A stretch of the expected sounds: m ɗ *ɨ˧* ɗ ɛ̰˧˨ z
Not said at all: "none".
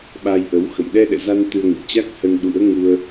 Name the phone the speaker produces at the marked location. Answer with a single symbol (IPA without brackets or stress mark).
ɛ˧